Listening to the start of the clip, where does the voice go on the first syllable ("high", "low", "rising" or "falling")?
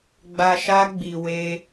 low